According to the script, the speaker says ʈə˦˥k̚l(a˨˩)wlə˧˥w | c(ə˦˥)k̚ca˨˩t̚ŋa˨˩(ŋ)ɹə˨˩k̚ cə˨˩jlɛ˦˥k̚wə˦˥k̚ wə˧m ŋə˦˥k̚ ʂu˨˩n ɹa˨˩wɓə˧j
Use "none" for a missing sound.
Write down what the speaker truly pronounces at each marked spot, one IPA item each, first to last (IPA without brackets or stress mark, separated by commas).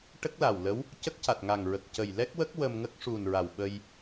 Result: a˨˩, ə˦˥, ŋ